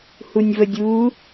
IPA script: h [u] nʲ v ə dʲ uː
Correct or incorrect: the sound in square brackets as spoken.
correct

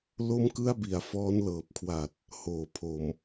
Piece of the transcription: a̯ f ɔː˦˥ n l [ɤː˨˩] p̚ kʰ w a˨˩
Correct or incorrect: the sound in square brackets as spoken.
correct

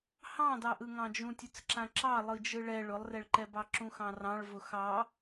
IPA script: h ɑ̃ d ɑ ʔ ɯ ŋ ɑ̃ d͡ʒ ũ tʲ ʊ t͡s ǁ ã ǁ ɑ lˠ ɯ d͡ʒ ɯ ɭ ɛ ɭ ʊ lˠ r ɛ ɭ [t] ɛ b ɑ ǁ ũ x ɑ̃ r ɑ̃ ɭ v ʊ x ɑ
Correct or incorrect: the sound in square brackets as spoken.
incorrect: ǃ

